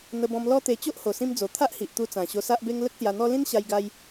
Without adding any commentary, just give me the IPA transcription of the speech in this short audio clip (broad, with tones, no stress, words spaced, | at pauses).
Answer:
n̪ə˧bɔ̃˧m lɔ˦t̪e˧ t͡ɕo˦ʔho˨˩sĩ˧md͡zo˨˩ t̪ʰa˦ʔhi˨ʔt̪u˧t͡sã˨˩ ɕo˧sa˦ʔbe˦ŋ lə˦k̚sja˧n̪ɔ˦ lĩ˦nɕa˧jɡa˧j